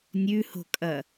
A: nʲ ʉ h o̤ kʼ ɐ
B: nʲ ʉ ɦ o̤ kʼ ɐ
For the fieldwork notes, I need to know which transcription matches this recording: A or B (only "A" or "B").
A